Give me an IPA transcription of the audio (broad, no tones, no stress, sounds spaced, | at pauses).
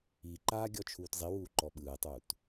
i ǃ aː ɡʲ ɔ t͡ʃʰ uː t zˤ i w uː ǃ ɔ ɓ ɯː tˤ uː t